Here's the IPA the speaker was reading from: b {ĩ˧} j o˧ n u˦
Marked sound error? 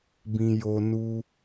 no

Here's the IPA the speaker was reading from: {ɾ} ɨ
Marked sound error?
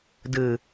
yes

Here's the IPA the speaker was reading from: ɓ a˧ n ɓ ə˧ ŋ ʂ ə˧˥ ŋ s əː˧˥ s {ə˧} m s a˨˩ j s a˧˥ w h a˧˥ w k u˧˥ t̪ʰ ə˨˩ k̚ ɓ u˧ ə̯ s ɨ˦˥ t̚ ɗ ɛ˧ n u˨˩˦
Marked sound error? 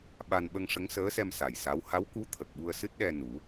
yes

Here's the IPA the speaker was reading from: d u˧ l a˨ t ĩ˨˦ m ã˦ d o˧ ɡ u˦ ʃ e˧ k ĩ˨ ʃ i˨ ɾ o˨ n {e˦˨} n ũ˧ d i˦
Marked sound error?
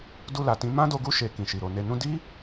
yes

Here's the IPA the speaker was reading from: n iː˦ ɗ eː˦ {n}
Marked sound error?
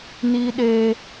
yes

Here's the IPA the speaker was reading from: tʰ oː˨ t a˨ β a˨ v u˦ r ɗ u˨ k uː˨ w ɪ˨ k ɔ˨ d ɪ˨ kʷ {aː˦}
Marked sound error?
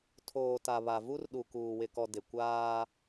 no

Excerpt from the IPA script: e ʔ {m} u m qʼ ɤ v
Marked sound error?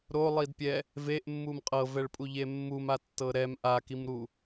yes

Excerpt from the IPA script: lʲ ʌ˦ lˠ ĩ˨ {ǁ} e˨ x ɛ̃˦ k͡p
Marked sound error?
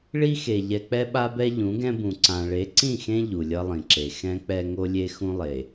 no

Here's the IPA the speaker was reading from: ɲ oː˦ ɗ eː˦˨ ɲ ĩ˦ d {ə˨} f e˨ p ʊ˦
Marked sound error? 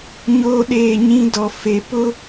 yes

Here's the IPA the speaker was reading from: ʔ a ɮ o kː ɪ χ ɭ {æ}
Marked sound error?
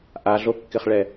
yes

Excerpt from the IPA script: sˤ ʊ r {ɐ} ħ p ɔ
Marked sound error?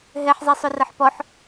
no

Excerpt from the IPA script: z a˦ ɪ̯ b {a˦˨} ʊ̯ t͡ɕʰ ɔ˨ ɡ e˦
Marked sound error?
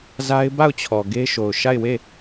no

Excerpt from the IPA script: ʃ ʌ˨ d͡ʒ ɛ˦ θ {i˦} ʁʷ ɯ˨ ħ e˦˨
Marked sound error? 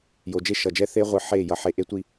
yes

